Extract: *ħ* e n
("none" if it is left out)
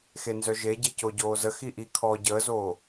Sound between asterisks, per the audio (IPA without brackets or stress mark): x